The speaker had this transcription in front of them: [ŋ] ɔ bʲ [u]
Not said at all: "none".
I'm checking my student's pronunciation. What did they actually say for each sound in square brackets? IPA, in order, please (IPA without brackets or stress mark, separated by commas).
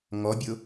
ŋ, ʊ